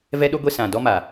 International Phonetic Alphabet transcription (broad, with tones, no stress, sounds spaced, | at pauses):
v ɛ˦ ɗ o˦ ɡʷ e˦ s ã˨ d ɔ˦ m a˨